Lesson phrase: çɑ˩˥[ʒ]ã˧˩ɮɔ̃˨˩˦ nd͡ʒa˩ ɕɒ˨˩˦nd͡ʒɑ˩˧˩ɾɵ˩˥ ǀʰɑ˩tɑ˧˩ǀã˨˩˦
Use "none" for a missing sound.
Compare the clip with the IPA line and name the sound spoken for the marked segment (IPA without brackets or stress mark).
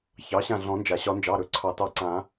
ɕ